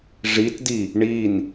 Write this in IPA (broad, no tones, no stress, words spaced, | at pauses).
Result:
ʐitdi | ɳin